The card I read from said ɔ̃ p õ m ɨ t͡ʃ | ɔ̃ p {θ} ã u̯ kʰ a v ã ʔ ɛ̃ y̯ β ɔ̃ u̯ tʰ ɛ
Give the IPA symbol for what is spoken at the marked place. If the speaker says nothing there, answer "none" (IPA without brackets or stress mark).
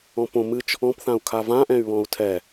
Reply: θ